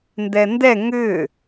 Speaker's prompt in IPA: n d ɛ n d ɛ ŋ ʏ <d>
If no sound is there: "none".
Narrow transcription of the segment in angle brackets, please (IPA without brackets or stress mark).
none